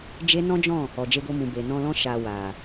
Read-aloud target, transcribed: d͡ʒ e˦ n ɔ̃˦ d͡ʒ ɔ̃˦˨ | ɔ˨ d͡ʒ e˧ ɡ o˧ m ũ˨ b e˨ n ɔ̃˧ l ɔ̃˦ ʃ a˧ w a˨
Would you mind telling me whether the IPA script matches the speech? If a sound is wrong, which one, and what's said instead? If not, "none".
none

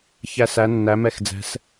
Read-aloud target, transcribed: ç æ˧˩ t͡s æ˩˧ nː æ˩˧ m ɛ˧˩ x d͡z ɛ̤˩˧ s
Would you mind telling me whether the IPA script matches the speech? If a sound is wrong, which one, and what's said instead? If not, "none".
t͡s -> s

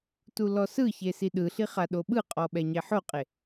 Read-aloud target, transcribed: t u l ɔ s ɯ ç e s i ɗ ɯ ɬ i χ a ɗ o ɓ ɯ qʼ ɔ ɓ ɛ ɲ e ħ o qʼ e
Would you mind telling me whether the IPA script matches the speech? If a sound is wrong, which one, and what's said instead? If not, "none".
none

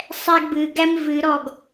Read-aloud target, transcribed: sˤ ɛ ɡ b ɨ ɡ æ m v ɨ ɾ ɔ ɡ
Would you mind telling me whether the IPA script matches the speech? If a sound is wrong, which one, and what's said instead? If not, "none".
none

